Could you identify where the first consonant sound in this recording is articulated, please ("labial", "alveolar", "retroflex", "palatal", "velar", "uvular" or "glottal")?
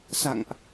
alveolar